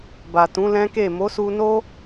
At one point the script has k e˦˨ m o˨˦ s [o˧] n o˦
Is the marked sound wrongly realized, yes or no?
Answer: yes